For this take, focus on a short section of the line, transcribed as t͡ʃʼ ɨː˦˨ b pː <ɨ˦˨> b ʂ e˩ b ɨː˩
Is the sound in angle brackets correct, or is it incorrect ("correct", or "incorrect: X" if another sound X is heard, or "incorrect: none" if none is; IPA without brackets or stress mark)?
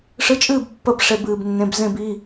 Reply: incorrect: ə˦˨